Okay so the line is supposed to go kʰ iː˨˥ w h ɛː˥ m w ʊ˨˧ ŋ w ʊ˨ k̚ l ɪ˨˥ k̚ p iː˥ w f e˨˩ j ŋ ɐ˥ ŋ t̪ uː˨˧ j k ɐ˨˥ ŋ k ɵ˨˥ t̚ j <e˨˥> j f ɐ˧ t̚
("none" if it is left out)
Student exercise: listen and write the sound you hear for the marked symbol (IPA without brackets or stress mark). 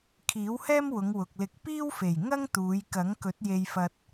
e˧